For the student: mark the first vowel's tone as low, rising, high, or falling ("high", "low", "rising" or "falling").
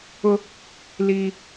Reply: high